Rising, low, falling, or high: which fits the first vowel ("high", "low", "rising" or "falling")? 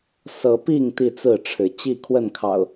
rising